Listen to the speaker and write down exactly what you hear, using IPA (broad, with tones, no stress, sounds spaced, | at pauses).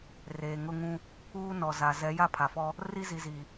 r eː˨ ŋ ʊ˦ ŋ ũ˦ | uː˦ n ɔ˨ z a˨ z ɛ˨˦ j a˦ pʰ a˨ f ɔ˦ | r i˦ z i˨ z i˨